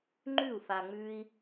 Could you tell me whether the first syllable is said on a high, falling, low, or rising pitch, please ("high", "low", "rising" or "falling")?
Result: falling